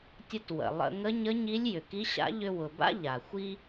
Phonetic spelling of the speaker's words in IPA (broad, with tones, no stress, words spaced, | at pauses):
tʲə˧twə̰˩ lˠə̰˧ ŋə˧˥ɲə˧˥ɲi˧˥lʲ jʏ˩ki˧˥ɕa̰˧˥ ʎʏ˧wʊ˩ba̰˥ ʎa˩xʷi˥